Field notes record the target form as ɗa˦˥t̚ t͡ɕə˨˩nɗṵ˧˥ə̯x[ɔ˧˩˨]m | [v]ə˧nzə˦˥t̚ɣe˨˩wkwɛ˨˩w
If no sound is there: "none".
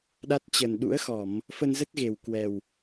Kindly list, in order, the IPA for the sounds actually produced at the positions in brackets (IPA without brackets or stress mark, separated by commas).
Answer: ɔ˧˩˨, f